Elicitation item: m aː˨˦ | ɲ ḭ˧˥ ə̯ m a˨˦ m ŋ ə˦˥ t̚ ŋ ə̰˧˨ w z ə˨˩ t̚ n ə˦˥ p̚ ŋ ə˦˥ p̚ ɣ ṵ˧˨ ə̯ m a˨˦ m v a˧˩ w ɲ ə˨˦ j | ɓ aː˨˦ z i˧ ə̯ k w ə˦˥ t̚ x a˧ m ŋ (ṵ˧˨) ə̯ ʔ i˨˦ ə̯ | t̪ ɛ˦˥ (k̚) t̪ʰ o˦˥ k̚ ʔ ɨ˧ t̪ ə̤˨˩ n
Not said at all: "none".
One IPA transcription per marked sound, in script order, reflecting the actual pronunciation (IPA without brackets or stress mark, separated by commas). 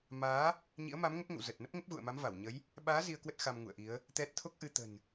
ṵ˧˨, t̚